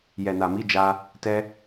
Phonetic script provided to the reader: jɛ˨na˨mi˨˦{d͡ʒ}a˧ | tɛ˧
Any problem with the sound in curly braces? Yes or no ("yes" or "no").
no